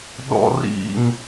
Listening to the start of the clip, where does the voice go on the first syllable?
high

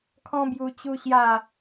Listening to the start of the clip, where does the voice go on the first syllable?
high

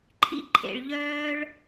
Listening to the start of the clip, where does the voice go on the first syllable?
high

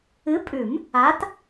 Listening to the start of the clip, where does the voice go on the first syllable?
rising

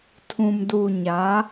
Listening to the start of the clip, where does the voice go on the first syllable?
low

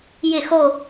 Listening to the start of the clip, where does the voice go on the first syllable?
falling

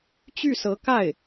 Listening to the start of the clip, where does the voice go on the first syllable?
falling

